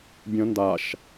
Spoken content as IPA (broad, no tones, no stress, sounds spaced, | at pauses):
bʲ ə̃ n d a ʃ